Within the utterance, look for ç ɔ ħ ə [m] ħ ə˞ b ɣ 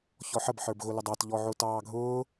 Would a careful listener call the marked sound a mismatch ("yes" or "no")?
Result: yes